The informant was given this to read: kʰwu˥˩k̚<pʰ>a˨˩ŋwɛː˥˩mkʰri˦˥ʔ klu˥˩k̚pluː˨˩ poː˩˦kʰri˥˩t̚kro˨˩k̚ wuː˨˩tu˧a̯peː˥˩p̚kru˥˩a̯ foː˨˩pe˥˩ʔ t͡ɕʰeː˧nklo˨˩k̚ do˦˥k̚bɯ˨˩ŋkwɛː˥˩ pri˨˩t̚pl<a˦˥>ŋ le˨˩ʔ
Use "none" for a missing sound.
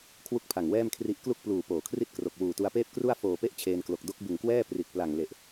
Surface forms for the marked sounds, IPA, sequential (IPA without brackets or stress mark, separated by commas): pʰ, a˨˩